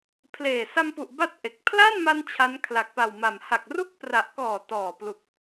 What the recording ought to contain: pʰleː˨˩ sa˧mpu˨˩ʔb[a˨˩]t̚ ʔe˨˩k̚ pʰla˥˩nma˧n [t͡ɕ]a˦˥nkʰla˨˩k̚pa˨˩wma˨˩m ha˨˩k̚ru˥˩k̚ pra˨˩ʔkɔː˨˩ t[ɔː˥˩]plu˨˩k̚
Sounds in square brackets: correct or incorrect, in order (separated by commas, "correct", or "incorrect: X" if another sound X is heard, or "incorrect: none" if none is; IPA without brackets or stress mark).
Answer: incorrect: a˦˥, incorrect: t͡ɕʰ, incorrect: ɔː˨˩